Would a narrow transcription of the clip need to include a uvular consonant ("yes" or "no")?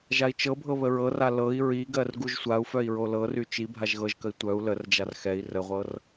yes